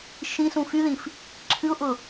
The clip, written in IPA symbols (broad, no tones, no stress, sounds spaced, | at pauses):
ʃ ĩ s ũ f y ð ĩ f | ǁʰ ɨ ʊ̯ ʔ ʊ